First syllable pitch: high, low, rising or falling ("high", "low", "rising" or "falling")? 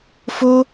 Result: high